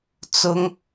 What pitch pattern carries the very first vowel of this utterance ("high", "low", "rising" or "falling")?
high